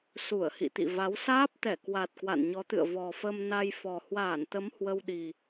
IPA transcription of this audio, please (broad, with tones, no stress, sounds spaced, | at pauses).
s u˧˩ ə̯ h ḭ˧˨ t̪ ḭ˧˨ v a˨˦ w s aː˦˥ p̚ t̪ ɛ˧˩ k w a˨˩ t̚ k w a̰˧˨ n ɲ ɔ˨˦ t̪ ɨ̰˧˨ ə̯ v ɔ˨˩ f ə˧ m n a˧ j f ɔ˨˩ h w aː˧˩ n t̪ ə˨˦ m h w ə˧ w ɗ i˨˩